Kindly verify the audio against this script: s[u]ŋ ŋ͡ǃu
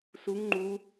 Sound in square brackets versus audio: correct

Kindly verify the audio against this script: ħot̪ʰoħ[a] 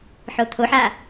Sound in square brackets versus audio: correct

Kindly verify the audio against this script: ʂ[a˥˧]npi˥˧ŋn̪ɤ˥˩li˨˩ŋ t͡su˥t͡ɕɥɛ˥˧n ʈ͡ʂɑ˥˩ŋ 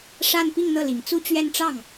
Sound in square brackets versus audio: correct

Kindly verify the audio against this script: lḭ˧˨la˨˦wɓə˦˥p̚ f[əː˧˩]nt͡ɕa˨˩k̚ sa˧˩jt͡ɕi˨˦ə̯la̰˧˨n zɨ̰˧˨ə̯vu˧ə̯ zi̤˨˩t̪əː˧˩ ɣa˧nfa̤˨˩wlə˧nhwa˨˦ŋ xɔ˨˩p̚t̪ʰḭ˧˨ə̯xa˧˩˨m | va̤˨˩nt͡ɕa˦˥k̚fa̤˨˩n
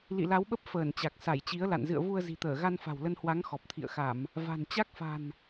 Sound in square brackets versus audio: correct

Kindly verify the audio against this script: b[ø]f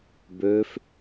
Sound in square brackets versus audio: correct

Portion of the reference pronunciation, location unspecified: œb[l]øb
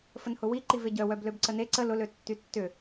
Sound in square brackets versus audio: correct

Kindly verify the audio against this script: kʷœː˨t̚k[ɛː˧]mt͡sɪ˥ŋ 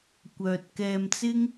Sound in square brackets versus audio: correct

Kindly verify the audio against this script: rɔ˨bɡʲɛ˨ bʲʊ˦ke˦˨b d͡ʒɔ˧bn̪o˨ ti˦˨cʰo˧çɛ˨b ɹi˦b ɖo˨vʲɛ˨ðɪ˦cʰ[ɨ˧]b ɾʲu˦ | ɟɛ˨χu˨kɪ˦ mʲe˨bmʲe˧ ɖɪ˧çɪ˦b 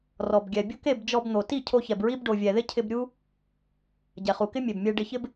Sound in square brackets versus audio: incorrect: ɪ˧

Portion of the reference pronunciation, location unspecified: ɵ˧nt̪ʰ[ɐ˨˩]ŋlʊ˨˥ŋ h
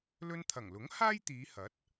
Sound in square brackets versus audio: correct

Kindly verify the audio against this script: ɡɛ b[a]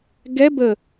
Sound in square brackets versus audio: incorrect: ə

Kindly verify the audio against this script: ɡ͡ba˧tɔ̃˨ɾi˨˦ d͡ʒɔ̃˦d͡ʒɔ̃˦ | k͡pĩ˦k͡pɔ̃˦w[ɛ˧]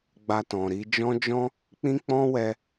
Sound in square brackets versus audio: correct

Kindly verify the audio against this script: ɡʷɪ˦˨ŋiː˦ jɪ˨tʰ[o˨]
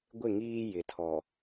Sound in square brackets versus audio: incorrect: ɔ˨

